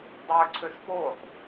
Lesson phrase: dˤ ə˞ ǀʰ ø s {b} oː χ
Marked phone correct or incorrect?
incorrect